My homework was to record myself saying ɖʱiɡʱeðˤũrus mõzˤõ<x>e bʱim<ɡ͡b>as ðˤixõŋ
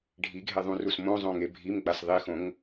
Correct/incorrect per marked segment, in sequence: incorrect: ŋ, correct

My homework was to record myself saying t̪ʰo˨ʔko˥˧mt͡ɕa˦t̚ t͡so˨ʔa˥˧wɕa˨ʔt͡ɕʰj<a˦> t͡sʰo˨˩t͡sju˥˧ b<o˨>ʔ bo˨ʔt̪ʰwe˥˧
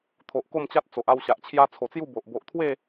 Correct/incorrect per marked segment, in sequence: correct, correct

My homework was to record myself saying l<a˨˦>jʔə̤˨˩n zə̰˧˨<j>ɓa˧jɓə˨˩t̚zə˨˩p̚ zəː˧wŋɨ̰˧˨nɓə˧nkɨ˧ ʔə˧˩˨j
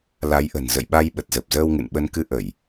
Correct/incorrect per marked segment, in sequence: correct, correct

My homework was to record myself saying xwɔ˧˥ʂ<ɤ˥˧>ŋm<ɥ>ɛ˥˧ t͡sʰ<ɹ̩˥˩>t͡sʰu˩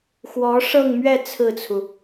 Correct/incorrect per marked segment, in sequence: correct, correct, correct

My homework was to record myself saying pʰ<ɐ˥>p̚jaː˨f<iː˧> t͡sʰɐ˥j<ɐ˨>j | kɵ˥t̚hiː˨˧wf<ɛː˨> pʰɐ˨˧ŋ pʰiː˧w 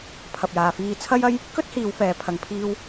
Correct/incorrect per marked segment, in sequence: incorrect: ɐ˨, correct, incorrect: ɐ˥, correct

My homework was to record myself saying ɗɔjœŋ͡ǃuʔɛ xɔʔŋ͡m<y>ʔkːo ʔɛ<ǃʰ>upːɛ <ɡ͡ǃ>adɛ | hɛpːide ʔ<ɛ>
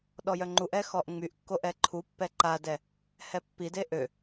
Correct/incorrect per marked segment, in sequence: correct, correct, incorrect: ǃ, incorrect: ø

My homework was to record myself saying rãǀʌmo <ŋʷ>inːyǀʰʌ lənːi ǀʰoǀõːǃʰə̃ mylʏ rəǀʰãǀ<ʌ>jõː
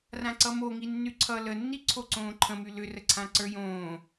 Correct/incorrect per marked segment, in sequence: incorrect: ŋ, incorrect: ə˞

